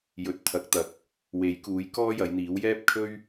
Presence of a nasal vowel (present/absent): absent